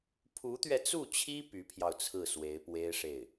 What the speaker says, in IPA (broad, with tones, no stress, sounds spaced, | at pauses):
pʰ u˧˥ t̪ ɥ ɛ˧ t͡s u˥˩ t͡ɕʰ i˥ p y˧˥ pʰ j ɑ˧ ʊ̯ t͡sʰ ɹ̩˥˩ s w e˧˥ ɪ̯ p w e˥ ɪ̯ ʂ e˥˩ ɪ̯